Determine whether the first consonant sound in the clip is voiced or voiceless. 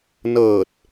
voiced